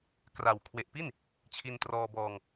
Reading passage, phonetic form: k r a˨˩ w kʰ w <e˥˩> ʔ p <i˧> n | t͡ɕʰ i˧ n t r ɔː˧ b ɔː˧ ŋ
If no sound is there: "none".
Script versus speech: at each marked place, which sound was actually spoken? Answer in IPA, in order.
e˨˩, i˥˩

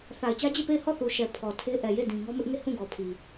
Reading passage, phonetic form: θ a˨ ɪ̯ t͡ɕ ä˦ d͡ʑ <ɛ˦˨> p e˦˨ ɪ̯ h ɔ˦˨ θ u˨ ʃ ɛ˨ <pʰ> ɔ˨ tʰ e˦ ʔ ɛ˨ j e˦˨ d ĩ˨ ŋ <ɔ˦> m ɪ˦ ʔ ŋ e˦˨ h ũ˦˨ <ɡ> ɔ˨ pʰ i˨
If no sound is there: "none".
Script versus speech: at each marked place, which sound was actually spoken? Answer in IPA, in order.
e˦˨, pʰ, ɔ˦, ɡ

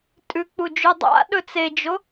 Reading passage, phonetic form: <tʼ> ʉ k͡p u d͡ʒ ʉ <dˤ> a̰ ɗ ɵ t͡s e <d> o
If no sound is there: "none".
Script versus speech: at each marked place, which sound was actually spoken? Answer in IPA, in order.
tʼ, dˤ, d͡ʒ

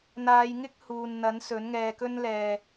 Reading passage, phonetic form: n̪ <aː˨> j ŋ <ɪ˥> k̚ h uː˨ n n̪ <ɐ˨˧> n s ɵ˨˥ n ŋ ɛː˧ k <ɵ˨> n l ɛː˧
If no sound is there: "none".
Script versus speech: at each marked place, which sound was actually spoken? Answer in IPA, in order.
aː˨˧, ɪ˥, ɐ˨˥, ɵ˥

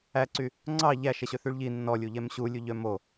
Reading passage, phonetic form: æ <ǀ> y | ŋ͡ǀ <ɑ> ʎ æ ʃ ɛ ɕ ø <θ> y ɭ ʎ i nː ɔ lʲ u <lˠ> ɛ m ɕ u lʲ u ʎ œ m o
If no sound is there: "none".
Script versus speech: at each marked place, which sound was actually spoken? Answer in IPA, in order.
ǀ, ɑ, θ, ʎ

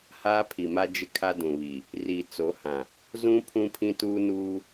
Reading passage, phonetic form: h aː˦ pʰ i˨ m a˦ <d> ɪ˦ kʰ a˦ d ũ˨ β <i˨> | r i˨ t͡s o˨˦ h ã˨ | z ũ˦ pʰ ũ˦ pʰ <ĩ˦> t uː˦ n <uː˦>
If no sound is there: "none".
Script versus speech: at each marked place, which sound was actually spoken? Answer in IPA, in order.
d͡ʒ, i˨, ĩ˦, uː˦

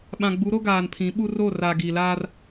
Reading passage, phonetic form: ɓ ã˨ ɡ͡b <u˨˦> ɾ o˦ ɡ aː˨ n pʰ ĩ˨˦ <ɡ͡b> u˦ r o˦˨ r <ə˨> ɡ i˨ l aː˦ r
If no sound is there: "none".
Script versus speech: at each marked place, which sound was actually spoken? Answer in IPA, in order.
u˨˦, ɓ, a˨

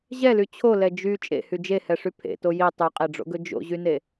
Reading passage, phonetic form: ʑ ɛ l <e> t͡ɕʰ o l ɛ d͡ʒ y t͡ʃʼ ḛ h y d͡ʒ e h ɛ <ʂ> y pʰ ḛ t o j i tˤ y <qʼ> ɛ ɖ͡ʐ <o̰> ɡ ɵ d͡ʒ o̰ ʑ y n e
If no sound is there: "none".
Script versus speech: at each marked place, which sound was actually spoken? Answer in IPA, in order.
y, ʂ, qʼ, o̰

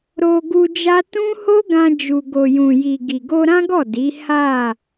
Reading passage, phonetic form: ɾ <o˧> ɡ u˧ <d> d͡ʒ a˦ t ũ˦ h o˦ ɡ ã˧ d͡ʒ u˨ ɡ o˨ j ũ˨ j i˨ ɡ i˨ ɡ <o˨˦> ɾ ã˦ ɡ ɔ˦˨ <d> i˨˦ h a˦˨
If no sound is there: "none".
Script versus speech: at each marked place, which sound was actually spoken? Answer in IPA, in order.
o˧, none, o˧, d

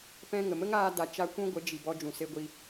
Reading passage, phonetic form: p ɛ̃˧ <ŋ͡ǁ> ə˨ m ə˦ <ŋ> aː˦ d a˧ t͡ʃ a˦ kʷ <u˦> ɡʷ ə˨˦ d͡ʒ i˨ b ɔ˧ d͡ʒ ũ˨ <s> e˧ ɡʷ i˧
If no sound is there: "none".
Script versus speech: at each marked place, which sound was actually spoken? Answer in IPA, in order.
ŋ, ŋ, ũ˦, s

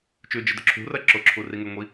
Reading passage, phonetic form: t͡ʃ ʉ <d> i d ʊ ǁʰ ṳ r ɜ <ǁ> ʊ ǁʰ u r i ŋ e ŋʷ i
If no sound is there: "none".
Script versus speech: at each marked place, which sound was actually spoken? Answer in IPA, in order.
d͡ʒ, ǁ

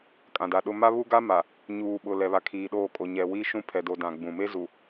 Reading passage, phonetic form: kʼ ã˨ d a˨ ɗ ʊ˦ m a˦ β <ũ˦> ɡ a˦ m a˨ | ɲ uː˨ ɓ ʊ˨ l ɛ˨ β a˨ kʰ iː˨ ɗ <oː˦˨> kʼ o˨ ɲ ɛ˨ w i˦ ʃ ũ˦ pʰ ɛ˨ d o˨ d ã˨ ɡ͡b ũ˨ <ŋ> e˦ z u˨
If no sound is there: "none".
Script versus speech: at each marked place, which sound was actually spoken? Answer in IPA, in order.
u˦, oː˦˨, m

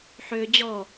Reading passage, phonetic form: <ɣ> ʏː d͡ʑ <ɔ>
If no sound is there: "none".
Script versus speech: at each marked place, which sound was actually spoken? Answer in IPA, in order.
ħ, ɔ

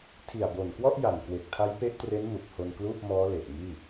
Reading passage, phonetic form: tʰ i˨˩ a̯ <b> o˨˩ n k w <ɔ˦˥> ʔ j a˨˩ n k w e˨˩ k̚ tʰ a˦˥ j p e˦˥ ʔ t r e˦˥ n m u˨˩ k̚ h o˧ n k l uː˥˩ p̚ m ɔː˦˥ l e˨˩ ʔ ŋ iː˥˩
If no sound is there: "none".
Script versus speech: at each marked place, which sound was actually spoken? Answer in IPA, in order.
b, ɔ˥˩

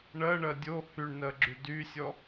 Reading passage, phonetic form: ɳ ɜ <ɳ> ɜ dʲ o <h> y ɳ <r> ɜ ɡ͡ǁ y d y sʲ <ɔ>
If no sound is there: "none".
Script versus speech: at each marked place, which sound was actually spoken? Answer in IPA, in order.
ɳ, h, n, ɔ

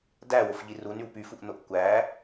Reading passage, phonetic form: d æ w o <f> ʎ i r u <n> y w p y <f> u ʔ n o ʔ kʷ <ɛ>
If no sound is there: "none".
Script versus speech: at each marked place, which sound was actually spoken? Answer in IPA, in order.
f, n, f, æ

